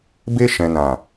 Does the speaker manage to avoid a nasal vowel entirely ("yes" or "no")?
no